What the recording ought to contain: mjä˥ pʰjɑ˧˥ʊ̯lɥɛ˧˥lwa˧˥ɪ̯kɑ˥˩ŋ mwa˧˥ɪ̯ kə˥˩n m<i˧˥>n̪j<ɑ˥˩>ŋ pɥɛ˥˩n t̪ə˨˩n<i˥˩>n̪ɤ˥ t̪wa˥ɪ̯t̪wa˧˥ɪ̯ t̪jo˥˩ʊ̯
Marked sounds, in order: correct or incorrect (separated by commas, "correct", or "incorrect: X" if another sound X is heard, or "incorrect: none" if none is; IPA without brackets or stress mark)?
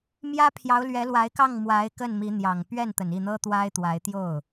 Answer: correct, incorrect: ɑ˨˩, correct